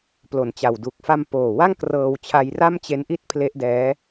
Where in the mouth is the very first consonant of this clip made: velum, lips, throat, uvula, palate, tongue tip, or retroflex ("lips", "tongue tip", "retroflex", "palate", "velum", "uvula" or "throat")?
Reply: lips